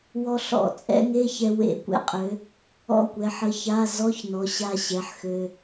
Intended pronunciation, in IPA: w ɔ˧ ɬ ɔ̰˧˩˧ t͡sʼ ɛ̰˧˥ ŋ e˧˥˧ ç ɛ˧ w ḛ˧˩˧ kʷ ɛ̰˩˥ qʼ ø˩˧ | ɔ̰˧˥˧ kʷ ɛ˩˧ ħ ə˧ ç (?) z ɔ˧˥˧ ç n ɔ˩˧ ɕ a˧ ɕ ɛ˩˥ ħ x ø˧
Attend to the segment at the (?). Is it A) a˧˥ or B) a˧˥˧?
B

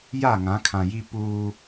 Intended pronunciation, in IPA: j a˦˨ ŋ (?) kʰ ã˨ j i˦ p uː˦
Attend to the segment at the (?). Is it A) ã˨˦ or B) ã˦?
A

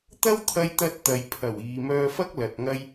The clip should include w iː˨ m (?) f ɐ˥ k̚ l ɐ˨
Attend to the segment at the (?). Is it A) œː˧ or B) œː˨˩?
A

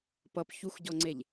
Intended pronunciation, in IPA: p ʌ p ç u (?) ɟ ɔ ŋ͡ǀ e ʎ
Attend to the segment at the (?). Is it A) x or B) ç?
A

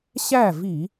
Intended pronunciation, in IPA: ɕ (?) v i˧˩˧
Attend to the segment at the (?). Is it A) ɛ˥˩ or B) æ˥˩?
B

